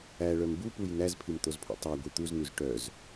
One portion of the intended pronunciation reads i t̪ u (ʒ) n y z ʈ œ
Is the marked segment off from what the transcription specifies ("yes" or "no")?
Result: yes